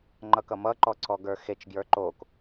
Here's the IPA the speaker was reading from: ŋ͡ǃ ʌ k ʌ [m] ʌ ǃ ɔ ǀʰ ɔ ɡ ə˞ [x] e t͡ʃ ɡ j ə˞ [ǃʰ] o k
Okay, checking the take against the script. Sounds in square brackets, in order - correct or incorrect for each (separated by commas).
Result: correct, correct, incorrect